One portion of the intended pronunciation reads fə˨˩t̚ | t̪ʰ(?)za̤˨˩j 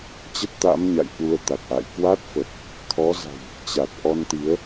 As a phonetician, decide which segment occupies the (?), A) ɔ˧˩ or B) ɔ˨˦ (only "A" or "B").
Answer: B